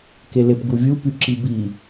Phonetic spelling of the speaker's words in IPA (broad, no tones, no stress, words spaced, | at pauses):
kelepɡuvʲu pyǁibi